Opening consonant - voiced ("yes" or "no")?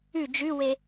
yes